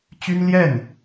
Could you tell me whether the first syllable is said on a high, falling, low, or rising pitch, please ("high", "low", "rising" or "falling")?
high